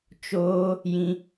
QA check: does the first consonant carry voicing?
no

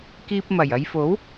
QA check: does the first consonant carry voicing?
no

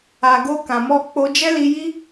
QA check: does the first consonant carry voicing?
yes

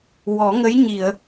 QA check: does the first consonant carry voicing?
yes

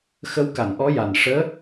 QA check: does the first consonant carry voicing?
no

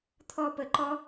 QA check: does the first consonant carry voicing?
no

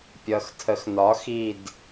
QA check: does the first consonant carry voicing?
no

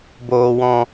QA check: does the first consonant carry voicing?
yes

